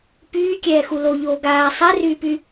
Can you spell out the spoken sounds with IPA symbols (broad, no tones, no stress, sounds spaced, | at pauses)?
p yː kʲ ɛː x u l o ʎ oː ɡ aː sˤ ɛ r yː p y